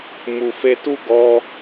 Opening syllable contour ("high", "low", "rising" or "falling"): low